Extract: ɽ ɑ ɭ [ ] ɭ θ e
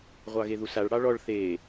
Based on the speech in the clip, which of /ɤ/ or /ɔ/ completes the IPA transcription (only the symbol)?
ɔ